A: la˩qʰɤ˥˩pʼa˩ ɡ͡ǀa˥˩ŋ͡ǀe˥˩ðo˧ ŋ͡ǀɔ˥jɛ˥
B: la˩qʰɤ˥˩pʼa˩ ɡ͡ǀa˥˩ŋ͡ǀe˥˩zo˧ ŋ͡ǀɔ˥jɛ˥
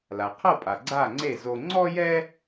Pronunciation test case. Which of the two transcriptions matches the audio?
B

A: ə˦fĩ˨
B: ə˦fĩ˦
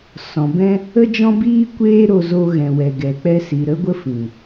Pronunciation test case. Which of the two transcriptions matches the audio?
A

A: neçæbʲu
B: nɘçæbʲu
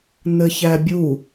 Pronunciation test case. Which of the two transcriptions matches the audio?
B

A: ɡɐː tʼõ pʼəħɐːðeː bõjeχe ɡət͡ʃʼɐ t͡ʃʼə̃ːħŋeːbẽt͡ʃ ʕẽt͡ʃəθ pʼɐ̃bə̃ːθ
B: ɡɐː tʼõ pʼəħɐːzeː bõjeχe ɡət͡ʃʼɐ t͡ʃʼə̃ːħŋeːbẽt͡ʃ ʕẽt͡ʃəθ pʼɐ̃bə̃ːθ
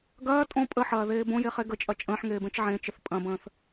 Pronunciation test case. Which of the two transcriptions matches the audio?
A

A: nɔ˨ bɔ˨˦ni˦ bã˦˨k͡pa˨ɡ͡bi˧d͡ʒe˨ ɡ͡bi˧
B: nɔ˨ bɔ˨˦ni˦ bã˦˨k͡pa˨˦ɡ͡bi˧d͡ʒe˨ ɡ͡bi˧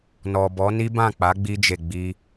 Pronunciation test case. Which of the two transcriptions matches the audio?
B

